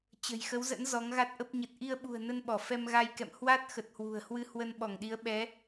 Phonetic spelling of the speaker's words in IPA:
t͡ɕə̤˨˩jxə˨˦wzə̰˧˥n zɔ˨˦ŋɣa˦˥t̚ʔə˦˥p̚ ɲə˨˩t̚ʔi˧ə̯ɓṳ˨˩ə̯ nə˧nɓɔ˧˩ fɛ˧mɣa˧jkɛ̰˧˨m hwa˦˥t̚ xə˨˩t̚hwṳ˨˩ə̯hwɨ˧ hwə˧nɓɔ˧˩ŋɗi˨˦ə̯ ɓɛ˨˦

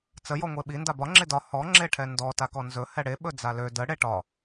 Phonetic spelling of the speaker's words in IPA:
t͡sə jɔŋʷeɓi ndabɒ ŋ͡ǁedɒ hɔ ŋ͡ǁeʈʰɛndɔ takɔnzɵ hɛɽe ɓɵd͡zalø də ɽeʈɒ

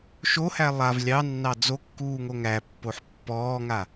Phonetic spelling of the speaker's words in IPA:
ʃohæ lˠav lʲɑnːɑ d͡zokːuːŋo ŋæpːoħ pːɔːŋa

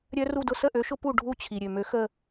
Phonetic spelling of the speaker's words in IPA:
ɾʲœ˥ru˥˧dʊ˥ sə˥˧ʔø˧˥ʃʊ˥ pu˥˧ ɖʱu˥˧t͡ɕʰi˨ ɾʲø˨mø˧˥ xə˥˧

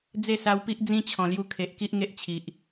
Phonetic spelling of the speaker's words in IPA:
d͡ze˥˧sa˧wpi˦ʔ d͡zĩ˦t͡ɕʰɔ̃˨˩lju˧kʰe˨ʔ ki˦ʔŋe˦ʔt͡ɕʰi˨ʔ

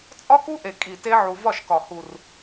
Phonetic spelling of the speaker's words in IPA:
t͡sʼɒ˦ku˦ʔe˨ kʼi˨ te˦ ʕu˨ vɒ˦˨ʃkɒ˨ hu˨r

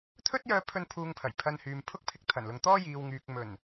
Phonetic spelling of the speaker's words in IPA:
t̪ʰɵ˥t̚jœː˧pʰɵ˧n pʰuː˧ŋpʰɐ˨˩j pʰɐ˧nhyː˨m pʰʊ˥k̚pʰɪ˧k̚ t̪ʰɐ˨˩nlʊ˨ŋ t̪ɔː˥ jiː˨wŋyː˨k̚ mɵ˨˩n

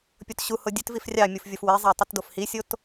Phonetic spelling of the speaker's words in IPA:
pʲotɕuho dʲøtvif rʲɑmʲuf vʲofwezˤæ tˤitdofhisʲot

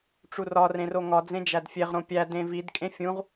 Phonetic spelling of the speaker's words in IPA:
ʈ͡ʂurɒ rẽroŋɒ d͡zẽd͡ʒædfʲeʁ ɾõpʲæ dẽvid kʼẽfʲũʁ

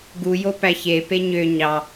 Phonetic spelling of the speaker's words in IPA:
ɡujo pæçe peɲø ɲɑ

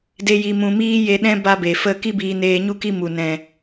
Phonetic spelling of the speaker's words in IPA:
de˦ji˧mũ˧ miː˦je˧ɗɛ̃˦ ba˦be˨ fə˦˨ki˦biː˧ neː˧ɲu˦ki˦ mu˨nɛ̃˨

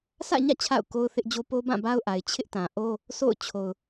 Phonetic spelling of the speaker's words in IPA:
sʰä̰˦˨ɲä̰˦˨ t͡ɕʰa̰˦˨ʊ̯ko˦ʊ̯θɪ˦ʔd͡ʑo˦ po˦bã˦˨ba˦ʊ̯ʔa˨ɪ̯ t͡ɕʰɪ˦ʔtã˨ʔo˦ | sʰo̰˦˨ʊ̯ t͡ɕʰo˨ʊ̯

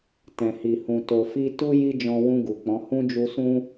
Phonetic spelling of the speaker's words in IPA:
tɛ̃˨hi˨hũ˨ to˨fi˧ tu˧ ji˦d͡ʒɔ̃˧wũ˧ ɡu˨k͡pɔ̃˨˦ hũ˦d͡ʒu˧sũ˦

